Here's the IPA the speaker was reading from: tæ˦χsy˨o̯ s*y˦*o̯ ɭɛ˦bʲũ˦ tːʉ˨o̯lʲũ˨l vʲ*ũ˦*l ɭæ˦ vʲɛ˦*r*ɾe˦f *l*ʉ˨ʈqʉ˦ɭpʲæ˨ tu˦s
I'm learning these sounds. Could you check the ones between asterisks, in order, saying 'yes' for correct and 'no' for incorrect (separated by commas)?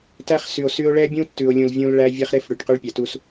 yes, yes, no, no